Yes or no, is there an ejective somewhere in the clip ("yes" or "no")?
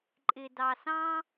yes